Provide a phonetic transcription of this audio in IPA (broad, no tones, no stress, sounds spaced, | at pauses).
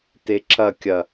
t e ǁ ɐ kʲ ɐ